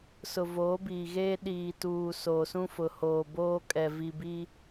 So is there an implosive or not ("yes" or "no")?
yes